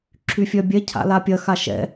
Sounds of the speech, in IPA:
ǁʰ y fʲ œ bʲ ɛ cʰ a̰ l a pʲ ɐ x a ʃ ɛ̰

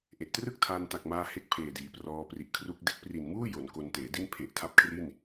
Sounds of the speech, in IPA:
ʔ e˨˩ ʔ t r ɯ˥˩ k̚ tʰ aː˧ n t a˨˩ k̚ m aː˧ h e˥˩ k̚ pʰ eː˨˩ d iː˩˦ p r ɔː˧ p r i˨˩ ʔ kʰ r u˥˩ k̚ d e˦˥ k̚ p r i˨˩ n m uː˥˩ j o˩˦ n k o˧ n t eː˩˦ d i˥˩ n pʰ e˨˩ ʔ tʰ a˦˥ p̚ kʰ r i˥˩ n

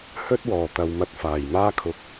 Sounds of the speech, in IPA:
h ɵ˥ t̚ w ɔː˨˩ t̪ ɐ˨ w m ɐ˧ t̚ f aː˨˩ j m aː˥ kʰ ʊ˧ k̚

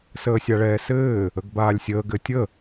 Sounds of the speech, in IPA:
s əː sʲ a ɭ ɛː s ɘː | ə ɡ b aː lʲ sʲ əː ɡ ɘ tʲ ə

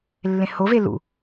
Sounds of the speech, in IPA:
lː ẽ h o v e l ṵ

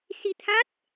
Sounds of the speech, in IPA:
s i˧ t̪ʰ a˦˥ t̚

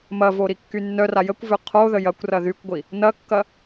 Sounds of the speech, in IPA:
m ɐ v o ɾ i kː y nː œ r a j ə kʷ v ø qʰ o ð ə j ɐ kʷ r ɐ ð y kʷ ɡʷ i | n ɐ kː ɐ

